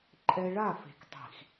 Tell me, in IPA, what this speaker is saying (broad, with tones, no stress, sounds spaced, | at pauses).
ǃʼ ɛ˦ ɭ a˦˨ f e̤˨ k tˤ i̤˨ x